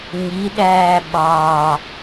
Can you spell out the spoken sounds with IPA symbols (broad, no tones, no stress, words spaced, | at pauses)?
ɲiɗæː ɓɑ